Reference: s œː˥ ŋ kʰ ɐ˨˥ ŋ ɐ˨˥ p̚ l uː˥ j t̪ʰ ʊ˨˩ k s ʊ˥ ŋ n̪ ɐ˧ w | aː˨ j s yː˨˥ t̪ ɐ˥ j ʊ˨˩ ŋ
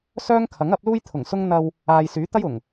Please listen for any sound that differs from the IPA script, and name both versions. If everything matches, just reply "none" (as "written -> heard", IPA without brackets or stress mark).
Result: k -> ŋ